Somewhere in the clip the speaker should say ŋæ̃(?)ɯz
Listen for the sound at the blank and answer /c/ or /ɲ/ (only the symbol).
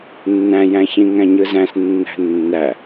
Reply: ɲ